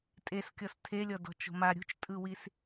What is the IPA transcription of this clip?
tʼ e s kʲ ɔ s tʰ e lʲ ɔ d ɔ̤ t͡ʃ o̤ m a ɾʲ ṳ t͡ʃ tʼ ɯ w i s

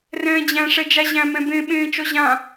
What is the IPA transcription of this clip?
r ɛ̃ː d͡ʑ æ̃ ʂ ɛ d͡ʒ a ʑ æ̃ m ɛ̃ b ẽ ɓ ẽː t͡ʃ ɔ ʑ ã

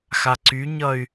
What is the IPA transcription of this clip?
x a ǀ y ɲ ʌ y̯

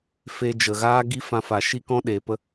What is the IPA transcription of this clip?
f e˧ d͡ʒ ə˨ ɣ aː˦ ɡ i˦ f ã˧ f a˨ ʃ i˦ k ɔ̃˦ ɗ eː˨ p ə˧

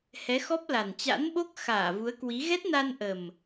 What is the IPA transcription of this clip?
h ɛ˨˦ x ɔ˦˥ p̚ l a˨˩ n t͡ɕ a̰˧˥ n ɓ o˦˥ k̚ x aː˧˩ v u˨˦ ə̯ k w i˨˦ ɣ ɛ˦˥ t̚ n a˧ n ʔ ə˨˩ m

